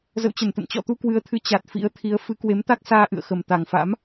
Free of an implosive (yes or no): yes